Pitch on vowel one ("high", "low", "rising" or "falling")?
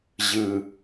low